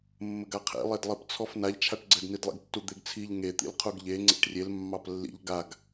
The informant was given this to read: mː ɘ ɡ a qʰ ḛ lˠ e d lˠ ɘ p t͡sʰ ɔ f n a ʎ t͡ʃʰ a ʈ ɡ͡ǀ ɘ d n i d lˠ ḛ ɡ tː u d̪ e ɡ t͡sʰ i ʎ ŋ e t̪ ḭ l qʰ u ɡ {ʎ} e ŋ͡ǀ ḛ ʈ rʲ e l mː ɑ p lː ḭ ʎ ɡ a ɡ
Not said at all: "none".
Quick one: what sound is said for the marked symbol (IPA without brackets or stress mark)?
ʎ